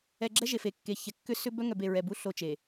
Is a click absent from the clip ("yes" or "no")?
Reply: no